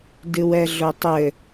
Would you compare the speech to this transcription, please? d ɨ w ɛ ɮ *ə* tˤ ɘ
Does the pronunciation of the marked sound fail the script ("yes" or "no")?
yes